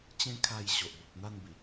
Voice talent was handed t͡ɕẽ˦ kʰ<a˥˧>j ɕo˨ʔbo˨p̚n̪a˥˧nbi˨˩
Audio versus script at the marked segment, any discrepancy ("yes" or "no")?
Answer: no